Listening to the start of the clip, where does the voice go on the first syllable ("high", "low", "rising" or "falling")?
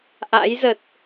rising